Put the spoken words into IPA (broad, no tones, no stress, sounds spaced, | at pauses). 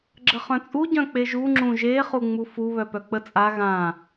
ɡ͡ǁ ə χ œ̃ t͡sʼ u ɟ œ̃ k͡p e ʒ u ŋ͡ǁ ũ ʒ e χ u ŋ͡m u f u β œ p œ k͡p ə t͡sʼ a ɣ ã